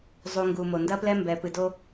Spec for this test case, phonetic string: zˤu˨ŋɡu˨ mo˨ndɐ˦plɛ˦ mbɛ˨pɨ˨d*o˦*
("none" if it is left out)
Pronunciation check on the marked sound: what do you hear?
o˦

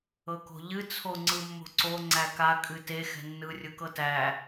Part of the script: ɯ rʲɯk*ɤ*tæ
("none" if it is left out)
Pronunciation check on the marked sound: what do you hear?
ɤ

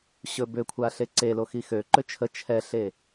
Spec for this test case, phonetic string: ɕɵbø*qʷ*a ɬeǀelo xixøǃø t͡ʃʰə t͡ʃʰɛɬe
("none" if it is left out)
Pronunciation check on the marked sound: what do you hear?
kʷʰ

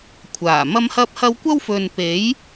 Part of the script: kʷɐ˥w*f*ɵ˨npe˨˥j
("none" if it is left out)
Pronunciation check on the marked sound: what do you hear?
f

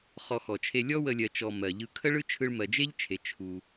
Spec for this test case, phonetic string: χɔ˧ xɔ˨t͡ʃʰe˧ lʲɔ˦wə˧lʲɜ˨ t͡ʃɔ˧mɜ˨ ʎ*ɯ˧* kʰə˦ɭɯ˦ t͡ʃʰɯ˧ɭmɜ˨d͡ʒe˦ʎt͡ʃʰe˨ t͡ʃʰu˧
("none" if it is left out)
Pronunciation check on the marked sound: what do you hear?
ɯ˧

